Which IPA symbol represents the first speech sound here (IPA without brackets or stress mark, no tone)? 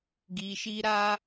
ɡ